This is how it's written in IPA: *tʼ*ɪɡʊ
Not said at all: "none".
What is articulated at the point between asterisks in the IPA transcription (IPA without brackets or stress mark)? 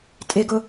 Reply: tʼ